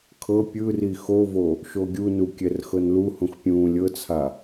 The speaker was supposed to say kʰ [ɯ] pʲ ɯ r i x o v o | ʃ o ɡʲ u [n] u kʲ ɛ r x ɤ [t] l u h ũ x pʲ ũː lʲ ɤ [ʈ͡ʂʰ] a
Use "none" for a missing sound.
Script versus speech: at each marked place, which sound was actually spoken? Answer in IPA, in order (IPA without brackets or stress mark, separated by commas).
ɤ, n, n, t͡sʰ